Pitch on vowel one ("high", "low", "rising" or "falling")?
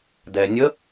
low